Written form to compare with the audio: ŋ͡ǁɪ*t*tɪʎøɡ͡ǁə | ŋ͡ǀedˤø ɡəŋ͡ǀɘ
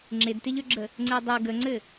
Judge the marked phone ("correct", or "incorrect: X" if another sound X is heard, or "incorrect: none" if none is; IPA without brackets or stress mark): incorrect: d